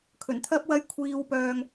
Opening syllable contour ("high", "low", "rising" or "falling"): low